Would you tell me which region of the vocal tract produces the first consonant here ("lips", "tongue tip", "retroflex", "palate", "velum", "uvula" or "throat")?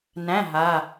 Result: tongue tip